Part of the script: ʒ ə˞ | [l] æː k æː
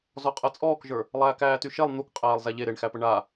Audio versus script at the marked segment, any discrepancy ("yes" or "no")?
yes